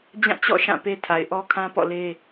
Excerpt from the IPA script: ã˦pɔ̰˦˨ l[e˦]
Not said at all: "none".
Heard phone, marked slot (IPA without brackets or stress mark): e˦